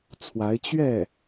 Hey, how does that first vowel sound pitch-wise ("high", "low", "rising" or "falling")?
rising